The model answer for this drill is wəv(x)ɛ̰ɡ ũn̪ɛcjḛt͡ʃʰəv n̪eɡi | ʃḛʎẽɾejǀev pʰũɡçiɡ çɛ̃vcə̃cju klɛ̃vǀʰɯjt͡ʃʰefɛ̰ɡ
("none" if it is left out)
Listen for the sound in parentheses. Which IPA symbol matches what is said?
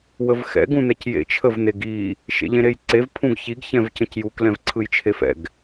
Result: x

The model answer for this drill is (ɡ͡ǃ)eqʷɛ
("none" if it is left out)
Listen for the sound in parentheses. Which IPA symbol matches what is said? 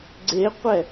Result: ɡ͡ǀ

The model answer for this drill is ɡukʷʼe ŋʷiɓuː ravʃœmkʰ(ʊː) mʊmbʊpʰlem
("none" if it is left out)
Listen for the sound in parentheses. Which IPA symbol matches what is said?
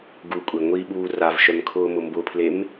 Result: ʊː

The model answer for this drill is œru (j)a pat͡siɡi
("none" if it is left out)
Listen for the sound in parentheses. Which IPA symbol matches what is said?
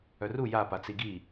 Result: j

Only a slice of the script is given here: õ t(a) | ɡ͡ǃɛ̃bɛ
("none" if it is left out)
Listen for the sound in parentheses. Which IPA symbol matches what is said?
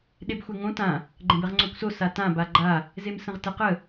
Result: ã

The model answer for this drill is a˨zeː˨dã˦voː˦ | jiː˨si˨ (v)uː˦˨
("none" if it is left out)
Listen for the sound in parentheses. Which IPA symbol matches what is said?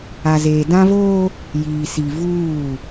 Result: v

